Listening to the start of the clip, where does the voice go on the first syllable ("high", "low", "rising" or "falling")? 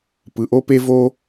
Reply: low